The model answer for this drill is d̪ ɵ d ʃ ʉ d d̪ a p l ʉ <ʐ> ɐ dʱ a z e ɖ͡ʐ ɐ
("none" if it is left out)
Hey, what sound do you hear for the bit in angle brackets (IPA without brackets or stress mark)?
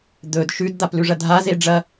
ʐ